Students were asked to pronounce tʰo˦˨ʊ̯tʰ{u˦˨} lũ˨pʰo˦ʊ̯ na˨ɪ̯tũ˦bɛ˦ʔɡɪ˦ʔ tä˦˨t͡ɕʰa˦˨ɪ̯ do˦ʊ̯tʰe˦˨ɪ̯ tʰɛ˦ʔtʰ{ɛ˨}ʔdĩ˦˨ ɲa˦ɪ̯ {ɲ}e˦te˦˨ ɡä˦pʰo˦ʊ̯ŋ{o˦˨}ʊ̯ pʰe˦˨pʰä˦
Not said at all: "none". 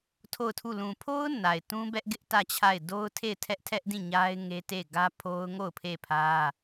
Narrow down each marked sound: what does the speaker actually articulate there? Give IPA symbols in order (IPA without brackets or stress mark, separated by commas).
u˦˨, ɛ˦, ŋ, o˦˨